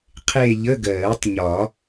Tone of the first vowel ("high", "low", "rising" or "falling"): falling